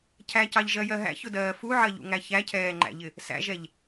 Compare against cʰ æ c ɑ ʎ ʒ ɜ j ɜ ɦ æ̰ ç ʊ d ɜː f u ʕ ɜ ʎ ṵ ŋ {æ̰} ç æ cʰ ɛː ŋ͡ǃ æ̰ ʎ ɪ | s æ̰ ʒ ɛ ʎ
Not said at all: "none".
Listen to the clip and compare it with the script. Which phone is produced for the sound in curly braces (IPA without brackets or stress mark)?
æ